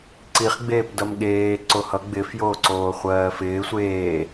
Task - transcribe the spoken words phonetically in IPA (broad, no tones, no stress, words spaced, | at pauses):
ǀiχɡ͡beːp dʌmɠeː ǀohʌ ɡ͡bɪfjoːǀoː χʷɜːfɪː sʷeː